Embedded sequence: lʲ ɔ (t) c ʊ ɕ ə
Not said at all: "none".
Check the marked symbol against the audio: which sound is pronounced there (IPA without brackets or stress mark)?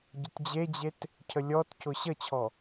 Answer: t